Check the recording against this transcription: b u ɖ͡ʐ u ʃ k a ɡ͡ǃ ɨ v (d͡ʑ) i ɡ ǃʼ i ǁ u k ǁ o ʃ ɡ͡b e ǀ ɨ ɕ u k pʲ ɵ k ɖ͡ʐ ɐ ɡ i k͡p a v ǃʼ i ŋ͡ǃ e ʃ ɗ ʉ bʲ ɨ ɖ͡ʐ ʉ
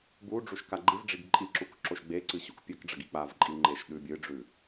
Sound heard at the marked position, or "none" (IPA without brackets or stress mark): ɖ͡ʐ